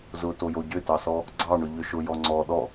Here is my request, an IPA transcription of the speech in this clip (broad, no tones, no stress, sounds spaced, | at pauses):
z ʊ t o j o ɟ ʏ t ɑ s ɔ | ɡ͡ǀ ɑ ɳ ʏ ʎ ʏ ʃ ʊ j ɔ ŋ͡ǀ ɔ ɗ ɔ